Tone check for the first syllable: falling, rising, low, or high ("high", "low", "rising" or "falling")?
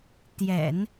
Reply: low